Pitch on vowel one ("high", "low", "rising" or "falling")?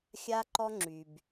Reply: high